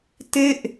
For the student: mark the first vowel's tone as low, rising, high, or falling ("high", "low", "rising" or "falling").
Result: falling